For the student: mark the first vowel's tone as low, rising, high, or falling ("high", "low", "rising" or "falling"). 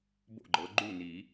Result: falling